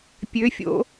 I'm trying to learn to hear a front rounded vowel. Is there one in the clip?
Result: yes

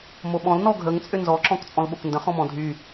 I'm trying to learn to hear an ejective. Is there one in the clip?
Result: yes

